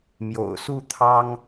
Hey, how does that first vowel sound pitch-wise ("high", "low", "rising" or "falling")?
low